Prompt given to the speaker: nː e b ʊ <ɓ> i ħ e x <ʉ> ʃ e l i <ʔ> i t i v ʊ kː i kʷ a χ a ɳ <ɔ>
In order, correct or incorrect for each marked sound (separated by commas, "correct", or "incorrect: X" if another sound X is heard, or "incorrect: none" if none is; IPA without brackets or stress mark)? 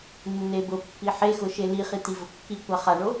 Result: incorrect: pː, incorrect: ʊ, incorrect: χ, incorrect: o